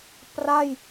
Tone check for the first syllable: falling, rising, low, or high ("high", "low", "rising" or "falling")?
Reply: falling